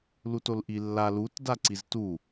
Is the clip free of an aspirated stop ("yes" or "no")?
yes